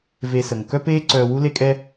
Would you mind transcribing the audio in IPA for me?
ve˧sə˩ŋ kœ˥peː˥ ǀœː˧wu˥ le˥kʼɛ˥

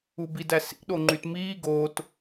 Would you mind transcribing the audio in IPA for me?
ubidæsḭ ɗoŋ͡ǃytmiː ɡot

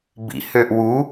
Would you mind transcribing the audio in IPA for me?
bḭhøʔ wu

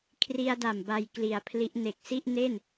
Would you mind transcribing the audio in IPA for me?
kʰri˧a̯da˨˩m ba˧j kli˩˦a̯pʰli˦˥ʔ ne˨˩k̚si˥˩ʔne˥˩n

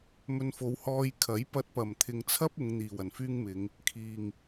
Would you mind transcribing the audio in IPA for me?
mɵ˧nfo˨˧w hɔː˧jkʰɐ˨˥j pɐ˧t̚pɐ˨˩mt̪ʰɪ˨ŋt͡sʰɐ˥p̚ ʊ˨˧ŋn̪iː˨˩w ɐ˨˩nfyː˥ŋmɪ˨˧ŋ | kʰiː˨˩ŋ

